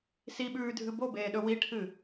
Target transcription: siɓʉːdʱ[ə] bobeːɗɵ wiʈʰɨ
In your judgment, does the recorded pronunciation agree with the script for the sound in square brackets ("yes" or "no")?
no